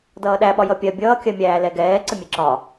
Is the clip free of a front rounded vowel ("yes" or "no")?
yes